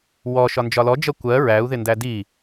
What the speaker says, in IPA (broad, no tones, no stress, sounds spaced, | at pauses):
w ɔ ʃ ɒ n d͡ʒ ɒ l ɔ d͡ʒ ʌ kʷ ɜ ɹ æ u̯ ð ɪ n d æ d i